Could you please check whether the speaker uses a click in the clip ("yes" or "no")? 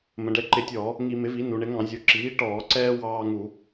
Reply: yes